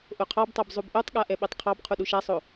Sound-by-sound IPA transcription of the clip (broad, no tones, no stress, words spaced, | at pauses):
ʔoqʰɑbtˤab zˤubʔotˤɠa ʔɛɓɛtˤqʰɑb qʰuɗuʃasˤo